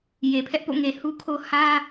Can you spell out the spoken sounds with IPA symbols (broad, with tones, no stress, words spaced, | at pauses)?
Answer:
je˨pʰɛ˦ʔpo̰˦˨ŋe˨ hu˦kʰo˦ hä˦